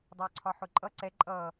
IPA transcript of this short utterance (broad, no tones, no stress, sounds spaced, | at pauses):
dˤ ʊː ǀʰ ɒ ħ ʊ ǃʼ ʌ ǀ ɛ ǃʼ ʌː